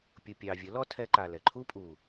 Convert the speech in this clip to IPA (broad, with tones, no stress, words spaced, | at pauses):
pʲu˨ pʲɑː˨ vʲə˨˦lɔ˦tʰɛ˧ ǃa˨lɛ˨ ǃʰuː˦pʼuː˨